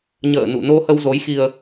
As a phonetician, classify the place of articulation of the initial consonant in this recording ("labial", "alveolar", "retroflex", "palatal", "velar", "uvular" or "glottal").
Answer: palatal